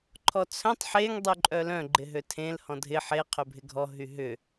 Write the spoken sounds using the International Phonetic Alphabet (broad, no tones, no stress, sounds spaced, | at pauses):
ǃʰ ɔ t͡sʰ œ̃ tˤ ħ e ŋ dˤ y ǃʼ œ l œ̃ ɡ͡ǃ ɪ ɦ ø tʰ ẽ l h ɔ̃ dʱ ɪ ħ e qʰ ø bʱ ɪ ɡʱ ɔ ɦ y ɦ ʏ